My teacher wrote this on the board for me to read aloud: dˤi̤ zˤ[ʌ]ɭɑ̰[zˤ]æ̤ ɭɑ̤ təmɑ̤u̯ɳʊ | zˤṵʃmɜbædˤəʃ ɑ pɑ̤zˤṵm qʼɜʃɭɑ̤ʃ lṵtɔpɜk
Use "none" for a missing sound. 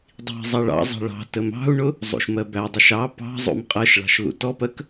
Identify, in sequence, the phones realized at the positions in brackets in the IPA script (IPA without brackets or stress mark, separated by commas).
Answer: ʌ, zˤ